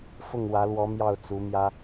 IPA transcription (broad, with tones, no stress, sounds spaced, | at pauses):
f ʊ˥˩ ŋ w ä˧˥ l w ɔ˧˥ m j ɑ˥˩ ʊ̯ t͡s u˧˥ m j ä˥